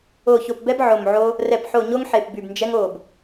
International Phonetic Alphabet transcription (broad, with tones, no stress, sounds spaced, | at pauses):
o˨˩ ç o˨˩ p b ɛ˧ b ʕ o˨˩ m ʕ o˧ | r ɛ˨˩ p ħ o˨˩ ɲ o˧ ŋ ħ e˨˩ p b y˨˩ b n d͡ʒ ɛ˧ ŋ o˨˩ b